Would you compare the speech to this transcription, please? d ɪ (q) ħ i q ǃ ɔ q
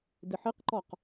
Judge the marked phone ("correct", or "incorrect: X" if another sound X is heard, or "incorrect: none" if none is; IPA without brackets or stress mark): incorrect: none